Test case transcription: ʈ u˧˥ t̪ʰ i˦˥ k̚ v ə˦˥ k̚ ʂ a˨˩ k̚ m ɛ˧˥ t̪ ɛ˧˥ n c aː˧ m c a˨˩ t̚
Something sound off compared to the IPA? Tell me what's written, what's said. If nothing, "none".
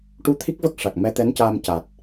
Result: none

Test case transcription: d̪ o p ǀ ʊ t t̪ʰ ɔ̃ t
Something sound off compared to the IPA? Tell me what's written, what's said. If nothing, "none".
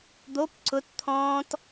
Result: none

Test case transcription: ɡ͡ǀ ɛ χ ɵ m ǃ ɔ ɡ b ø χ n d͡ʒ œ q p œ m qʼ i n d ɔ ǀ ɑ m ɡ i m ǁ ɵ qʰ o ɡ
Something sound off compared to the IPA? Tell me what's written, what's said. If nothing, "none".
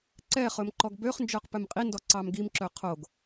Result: ɡ͡ǀ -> ǀ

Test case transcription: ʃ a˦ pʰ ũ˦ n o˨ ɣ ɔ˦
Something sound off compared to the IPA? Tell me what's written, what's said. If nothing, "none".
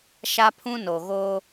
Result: ɔ˦ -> o˦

